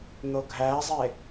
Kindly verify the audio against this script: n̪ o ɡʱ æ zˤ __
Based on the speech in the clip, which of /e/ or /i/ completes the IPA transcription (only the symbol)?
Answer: e